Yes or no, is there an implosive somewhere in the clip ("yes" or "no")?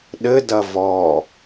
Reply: yes